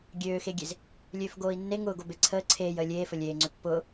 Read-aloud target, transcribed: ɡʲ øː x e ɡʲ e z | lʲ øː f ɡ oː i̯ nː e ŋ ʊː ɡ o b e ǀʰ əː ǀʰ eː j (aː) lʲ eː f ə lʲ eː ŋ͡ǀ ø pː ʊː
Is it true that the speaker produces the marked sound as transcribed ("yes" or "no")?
no